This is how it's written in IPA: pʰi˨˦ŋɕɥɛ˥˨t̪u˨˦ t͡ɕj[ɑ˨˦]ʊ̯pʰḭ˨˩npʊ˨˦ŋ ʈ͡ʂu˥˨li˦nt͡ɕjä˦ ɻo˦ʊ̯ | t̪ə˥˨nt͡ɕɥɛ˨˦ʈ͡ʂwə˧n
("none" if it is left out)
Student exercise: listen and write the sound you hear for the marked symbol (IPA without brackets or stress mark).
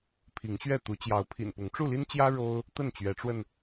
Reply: ɑ˨˦